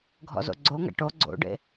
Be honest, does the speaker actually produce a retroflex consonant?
yes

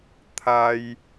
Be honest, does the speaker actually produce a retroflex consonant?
no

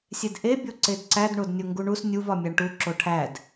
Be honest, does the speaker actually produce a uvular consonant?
no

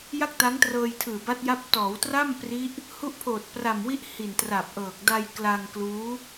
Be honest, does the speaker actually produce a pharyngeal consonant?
no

